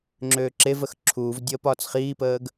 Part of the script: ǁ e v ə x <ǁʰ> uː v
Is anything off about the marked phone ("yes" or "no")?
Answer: no